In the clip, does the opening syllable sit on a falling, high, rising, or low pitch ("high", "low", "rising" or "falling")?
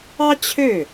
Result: high